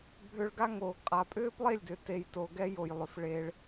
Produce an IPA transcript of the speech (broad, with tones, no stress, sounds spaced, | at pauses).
bʱ ʏ˧ ɭ ɡ a˦ ŋ oː˨ ɡ qʼ a˨ pʼ ʏː˦ p lˠ e˦˨ lʲ d ʏ˨ t e˧ j t o˨ ɡ ɛ˦ j o˨ j lˠ ʏ˨ f ɭ e˧ ɭ